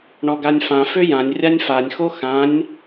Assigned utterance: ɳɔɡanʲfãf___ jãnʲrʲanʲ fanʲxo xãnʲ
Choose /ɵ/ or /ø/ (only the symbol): ø